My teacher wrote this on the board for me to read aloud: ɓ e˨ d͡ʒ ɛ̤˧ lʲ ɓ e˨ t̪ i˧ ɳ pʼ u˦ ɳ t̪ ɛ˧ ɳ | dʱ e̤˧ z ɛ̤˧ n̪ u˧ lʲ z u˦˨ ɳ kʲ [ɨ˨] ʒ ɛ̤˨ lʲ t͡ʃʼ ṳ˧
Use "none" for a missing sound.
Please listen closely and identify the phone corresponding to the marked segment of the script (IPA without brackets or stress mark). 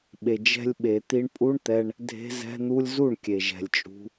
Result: e˨